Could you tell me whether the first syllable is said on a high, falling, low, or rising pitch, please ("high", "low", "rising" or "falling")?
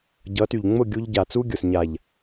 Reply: rising